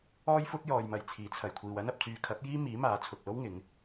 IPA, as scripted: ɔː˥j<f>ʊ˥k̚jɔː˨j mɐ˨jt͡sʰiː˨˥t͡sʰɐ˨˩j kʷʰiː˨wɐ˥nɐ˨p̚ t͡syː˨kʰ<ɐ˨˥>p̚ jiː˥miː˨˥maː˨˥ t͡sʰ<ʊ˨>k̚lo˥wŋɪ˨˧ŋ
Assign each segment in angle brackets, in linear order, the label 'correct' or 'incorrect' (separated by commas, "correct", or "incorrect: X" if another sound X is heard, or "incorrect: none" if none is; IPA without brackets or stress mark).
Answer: correct, correct, correct